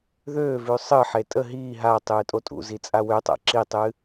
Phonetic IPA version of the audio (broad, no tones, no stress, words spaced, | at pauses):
ðøːvʉ sˤɨħe tʼə ɦiː ɦatˤɨː tʼotʼṵzi t͡sʼawøtˤa̰ ǁitˤɨ